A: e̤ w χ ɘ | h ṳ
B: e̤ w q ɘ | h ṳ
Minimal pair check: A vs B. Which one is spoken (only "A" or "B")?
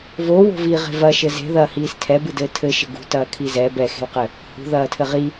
B